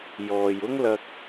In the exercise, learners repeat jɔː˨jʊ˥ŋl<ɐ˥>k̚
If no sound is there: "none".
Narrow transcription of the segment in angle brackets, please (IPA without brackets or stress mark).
ɐ˧